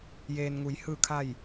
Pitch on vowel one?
low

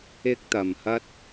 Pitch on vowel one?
high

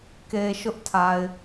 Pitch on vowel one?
low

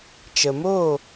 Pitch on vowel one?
low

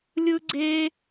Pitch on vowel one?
high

